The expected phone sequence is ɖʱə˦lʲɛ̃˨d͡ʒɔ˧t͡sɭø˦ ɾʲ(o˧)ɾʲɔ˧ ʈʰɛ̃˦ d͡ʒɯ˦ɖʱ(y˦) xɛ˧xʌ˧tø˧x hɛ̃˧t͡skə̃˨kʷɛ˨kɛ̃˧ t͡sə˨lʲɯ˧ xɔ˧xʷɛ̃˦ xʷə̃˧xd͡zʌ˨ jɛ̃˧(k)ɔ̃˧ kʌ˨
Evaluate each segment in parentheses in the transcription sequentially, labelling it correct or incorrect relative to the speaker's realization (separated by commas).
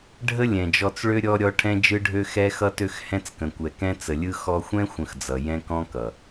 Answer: incorrect, incorrect, correct